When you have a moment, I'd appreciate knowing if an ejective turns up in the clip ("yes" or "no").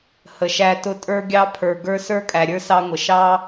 yes